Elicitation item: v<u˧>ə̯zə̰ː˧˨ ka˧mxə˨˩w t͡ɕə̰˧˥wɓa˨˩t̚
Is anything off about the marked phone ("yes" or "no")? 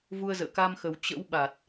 no